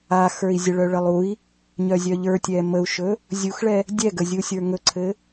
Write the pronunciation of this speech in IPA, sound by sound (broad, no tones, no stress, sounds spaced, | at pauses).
a x ə˞ i̯ zʲ ə ɭ œ ɭ ə lˠ u i̯ | ɲ œ zʲ œ ʎ ə˞ tʲ ɛ m ə u̯ ʃ ɵ | zʲ u x ɭ ɛ | dʲ ɛ ɡ ə zʲ u sʲ ə˞ ŋ ɵ ǀʰ ɘ